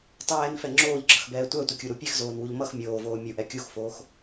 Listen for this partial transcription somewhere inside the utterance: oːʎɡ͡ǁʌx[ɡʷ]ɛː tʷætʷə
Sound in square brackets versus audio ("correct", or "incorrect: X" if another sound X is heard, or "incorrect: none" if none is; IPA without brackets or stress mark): incorrect: b